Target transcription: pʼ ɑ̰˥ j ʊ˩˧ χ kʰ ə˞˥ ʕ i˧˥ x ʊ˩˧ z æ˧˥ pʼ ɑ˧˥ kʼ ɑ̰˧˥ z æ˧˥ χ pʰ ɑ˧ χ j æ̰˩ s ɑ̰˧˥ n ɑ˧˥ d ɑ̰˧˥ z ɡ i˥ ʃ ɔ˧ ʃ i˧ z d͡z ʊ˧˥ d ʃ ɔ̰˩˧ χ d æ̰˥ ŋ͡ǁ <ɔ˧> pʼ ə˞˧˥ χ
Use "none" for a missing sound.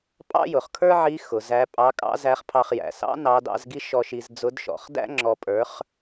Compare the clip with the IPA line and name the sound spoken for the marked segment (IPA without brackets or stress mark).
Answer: ɔ˧